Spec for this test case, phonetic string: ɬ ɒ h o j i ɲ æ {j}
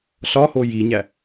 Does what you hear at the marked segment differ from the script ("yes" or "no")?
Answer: yes